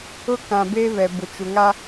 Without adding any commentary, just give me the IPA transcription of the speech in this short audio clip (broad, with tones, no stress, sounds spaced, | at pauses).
ʊ˦ k ã˨ b eː˦ β ɛ˨ b ʊ˨ t͡ʃ u˨ ŋ a˦